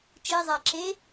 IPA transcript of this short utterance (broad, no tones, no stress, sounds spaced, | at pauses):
t͡ʃ e zˤ æ ǁ e